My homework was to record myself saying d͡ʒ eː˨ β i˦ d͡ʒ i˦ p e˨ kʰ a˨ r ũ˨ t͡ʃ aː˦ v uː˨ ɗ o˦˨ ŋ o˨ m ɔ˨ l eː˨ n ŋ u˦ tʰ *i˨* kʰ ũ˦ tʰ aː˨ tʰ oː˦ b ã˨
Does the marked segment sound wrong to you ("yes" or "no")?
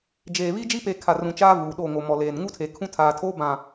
yes